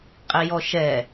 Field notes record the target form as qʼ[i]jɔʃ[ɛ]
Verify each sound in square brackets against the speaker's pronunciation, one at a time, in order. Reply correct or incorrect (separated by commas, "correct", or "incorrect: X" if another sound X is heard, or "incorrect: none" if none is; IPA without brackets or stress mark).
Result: correct, correct